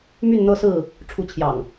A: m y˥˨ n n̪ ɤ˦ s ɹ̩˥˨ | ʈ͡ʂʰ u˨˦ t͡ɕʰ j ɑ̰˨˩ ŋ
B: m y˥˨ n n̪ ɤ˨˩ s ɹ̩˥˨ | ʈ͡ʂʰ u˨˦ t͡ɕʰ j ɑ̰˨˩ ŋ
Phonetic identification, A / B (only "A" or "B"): A